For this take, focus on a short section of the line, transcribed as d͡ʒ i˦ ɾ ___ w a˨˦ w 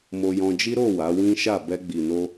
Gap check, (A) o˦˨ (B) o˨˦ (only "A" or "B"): A